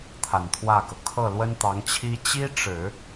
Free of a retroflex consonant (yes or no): no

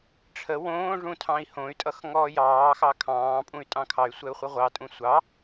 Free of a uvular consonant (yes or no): no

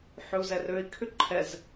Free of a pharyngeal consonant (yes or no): no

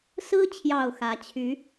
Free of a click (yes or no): yes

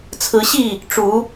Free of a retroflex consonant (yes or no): no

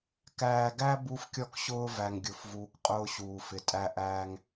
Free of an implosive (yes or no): yes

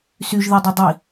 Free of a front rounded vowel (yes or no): no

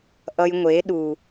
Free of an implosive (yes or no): no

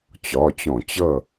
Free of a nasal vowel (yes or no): no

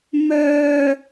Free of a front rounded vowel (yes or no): no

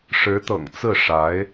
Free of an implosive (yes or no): yes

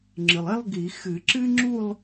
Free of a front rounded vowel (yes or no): yes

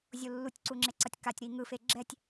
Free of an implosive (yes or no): yes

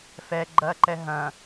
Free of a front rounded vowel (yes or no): yes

